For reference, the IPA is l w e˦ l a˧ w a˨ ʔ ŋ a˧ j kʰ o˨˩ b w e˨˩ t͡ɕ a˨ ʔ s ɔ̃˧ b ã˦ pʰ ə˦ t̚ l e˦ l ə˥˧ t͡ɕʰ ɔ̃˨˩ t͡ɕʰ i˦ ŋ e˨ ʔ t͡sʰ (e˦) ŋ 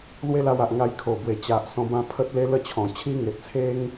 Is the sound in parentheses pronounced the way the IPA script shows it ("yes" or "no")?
yes